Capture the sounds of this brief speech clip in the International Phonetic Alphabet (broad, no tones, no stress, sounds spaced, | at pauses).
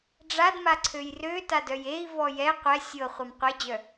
ɖ͡ʐ a d m a ǀʰ ø j r ø t a d œ j e i̯ v ɔ j ɛ qʷ ɛ sʲ ɤ χʷ a m qʷ e d͡ʑ œ